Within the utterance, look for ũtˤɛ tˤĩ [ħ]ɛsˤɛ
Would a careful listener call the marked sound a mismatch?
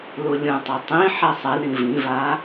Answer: no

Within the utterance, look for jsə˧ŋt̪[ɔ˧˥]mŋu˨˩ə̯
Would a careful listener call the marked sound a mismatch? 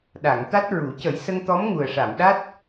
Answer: no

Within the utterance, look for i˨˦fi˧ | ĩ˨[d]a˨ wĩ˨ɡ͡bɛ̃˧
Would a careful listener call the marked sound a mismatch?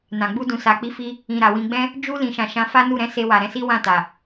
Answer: yes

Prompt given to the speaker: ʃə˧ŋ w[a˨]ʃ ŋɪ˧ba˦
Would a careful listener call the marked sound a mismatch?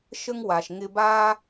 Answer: no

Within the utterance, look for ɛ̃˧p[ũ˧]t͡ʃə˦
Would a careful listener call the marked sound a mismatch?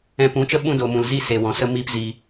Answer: yes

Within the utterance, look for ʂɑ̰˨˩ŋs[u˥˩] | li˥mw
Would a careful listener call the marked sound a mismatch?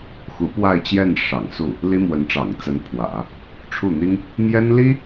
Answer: no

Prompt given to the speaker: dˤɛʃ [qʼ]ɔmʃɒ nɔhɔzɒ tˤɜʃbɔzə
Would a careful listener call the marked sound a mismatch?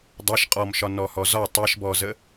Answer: no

